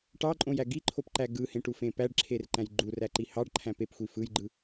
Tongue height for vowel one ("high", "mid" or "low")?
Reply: low